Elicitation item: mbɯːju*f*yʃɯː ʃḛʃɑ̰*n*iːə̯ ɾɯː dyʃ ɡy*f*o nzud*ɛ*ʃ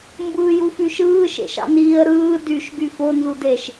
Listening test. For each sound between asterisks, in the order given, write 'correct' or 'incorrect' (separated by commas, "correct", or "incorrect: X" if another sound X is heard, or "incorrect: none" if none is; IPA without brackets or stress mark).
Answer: correct, correct, correct, incorrect: e